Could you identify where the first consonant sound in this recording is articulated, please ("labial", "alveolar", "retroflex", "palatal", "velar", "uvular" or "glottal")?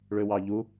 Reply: retroflex